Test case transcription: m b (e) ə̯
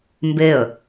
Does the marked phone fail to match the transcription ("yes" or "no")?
no